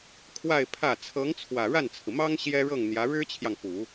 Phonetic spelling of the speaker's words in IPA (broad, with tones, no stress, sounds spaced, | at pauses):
kʰ w a˥˧ ɪ̯ pʰ ä˥˩ t͡sʰ ɤ˧˥ ŋ t͡sʰ w ä˨˩ ɻ a˥˩ n t͡sʰ ɹ̩˩ m ɑ˥ ŋ ɕ j ɛ˥ ɻ ɤ˥˩ ŋ n̪ j ä˧˥ ɻ ɻ̩˥ t͡ɕʰ j ɑ˨ ŋ p u˨˩˦